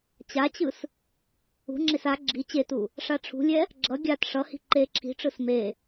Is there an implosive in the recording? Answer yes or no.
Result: no